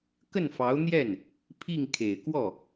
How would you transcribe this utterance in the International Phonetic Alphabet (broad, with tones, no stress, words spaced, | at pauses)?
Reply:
kə˥˩nfɑ˧˥ʊ̯n̪jɛ˥˩n | pʰi˥˩ŋkʰe˨˩ɪ̯ kwɔ˥˩